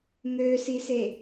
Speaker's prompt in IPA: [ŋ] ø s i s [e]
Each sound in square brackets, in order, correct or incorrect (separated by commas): correct, correct